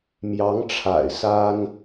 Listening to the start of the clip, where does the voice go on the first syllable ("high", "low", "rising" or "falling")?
rising